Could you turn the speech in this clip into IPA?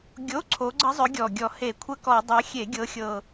ɡʲo˧˥˧ǀʰo˨˦ɡ͡ǀə˦˥zˤʏ˨˦ ɡʲɔ˨˩ɡʲɔ˨˩ he˧˩˧kʷʰə˦˥kɔ˧˩˧ dˤɤ˨˦xʲe˧˩˧ ɡʲɤ˨˦xʲɤ˨˩

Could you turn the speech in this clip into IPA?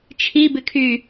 t͡ʃʰibɪkʰy

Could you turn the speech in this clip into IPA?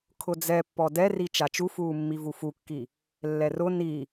kʰʊd͡zɛpːɔ dɛri t͡ʃat͡ʃufuː mːivufukːi | lːɛrʊ ni

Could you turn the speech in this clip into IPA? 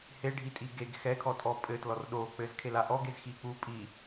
he ɖʱitʼiɡeɡ xɛkʰɔtʼɔ pʼɘtlɔr ɗo k͡pɘzkʰel aʔɔɡ ezxik͡pu pʼi

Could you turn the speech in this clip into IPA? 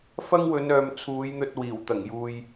fɐ˥ŋwɵ˨˧nœː˨m t͡sʰuː˨˧jn̪ɵ˧t̚ wiː˨˩wt̪ɐ˨˩ŋ juː˨j

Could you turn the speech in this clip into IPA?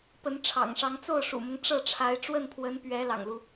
pə˧˥nʈ͡ʂʰɑ̰˨˩ŋʂɑ˧˥ŋ t͡so˥˩ʊ̯ʂṵ˨˩mʊ˦ŋ ʈ͡ʂɤ˥˩ʈ͡ʂʰa˧˥ɪ̯ ʈ͡ʂwə˥˩npʰwə˧˥npɥɛ˧˥ lɑ̰˨˩ŋlu˦

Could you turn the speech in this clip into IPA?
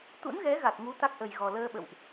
t̪ṵ˧˥nɣɛ˨˦ ɣa˨˩t̚ŋu˨˦ t̪a˦˥k̚ʔə˨˩jɣɔ˨˩ ləː˧ɓə̰˧˨wʔ

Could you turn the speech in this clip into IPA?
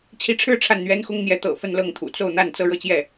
t͡ɕʰi˧˥ʈ͡ʂʰɻ̩˥˧ ʈ͡ʂʰa˥˩nn̪ɥɛ˥nxʊ˥ŋn̪jɛ˧˥ t̪ɤ̰˨˩ fə˥˧nlɤ˥˩ŋt̪ʰṵ˨˩ t͡so˥˧ʊ̯n̪a˥˩n t͡sɤ˥ɻɤ˥˧t͡ɕjɛ˥˩

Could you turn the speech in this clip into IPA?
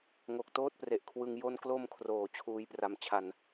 ŋo˨˩k̚toː˥˩t̚pre˨˩ʔkʰwɯ˧ŋ jo˧nklo˧m kʰroː˩˦ t͡ɕʰuː˧jpra˧mt͡ɕʰa˧n

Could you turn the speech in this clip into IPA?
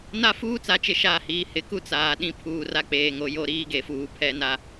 na˦fuː˦t͡sa˨t͡ʃɪ˨ ʃaː˦hiː˨ hɪ˨˦ku˦ t͡saː˨ɗĩ˦ pʰuː˨ra˦k͡peː˨ŋo˨ jo˦ɾiː˦ɡe˨fuː˨ pʰɛ˦na˦

